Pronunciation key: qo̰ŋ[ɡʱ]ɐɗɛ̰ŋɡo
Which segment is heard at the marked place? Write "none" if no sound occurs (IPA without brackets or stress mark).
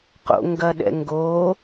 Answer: ɡ